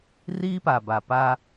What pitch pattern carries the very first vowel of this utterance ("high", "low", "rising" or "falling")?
high